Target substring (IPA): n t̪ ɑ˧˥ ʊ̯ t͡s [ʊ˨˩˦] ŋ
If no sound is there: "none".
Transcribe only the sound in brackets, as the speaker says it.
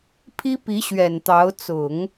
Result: ʊ˨˩˦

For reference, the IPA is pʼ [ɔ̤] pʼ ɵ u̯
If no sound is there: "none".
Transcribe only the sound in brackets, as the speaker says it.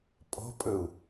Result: ɔ̤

